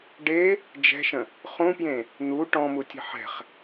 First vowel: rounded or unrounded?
unrounded